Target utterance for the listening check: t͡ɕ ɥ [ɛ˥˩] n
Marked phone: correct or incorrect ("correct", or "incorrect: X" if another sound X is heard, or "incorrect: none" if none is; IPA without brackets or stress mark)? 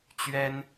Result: incorrect: ɛ˥